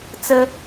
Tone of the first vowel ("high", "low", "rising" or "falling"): high